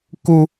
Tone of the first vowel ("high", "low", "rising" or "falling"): high